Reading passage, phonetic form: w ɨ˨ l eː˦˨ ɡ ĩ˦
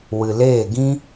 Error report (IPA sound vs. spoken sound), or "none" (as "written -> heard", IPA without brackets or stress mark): none